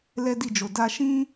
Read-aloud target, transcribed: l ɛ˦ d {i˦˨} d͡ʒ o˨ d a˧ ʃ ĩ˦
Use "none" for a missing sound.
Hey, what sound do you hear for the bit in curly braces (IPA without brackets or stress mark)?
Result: i˦˨